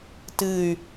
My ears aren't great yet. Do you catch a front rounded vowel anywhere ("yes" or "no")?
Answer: yes